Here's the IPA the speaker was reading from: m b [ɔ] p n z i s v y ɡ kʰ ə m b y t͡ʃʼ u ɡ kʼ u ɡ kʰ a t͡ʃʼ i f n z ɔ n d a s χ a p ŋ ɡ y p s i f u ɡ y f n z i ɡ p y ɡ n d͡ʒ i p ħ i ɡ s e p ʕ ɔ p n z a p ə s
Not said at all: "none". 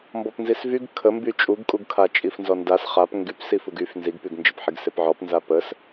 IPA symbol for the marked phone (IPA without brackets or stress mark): ɔ